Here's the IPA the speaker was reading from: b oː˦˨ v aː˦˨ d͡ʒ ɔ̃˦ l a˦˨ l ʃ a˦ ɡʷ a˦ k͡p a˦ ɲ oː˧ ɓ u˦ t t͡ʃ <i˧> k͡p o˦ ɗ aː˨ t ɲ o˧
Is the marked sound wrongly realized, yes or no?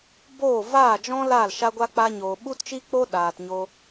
yes